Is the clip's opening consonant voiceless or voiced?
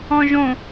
voiced